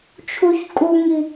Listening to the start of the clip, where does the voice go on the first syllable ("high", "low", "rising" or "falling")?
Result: high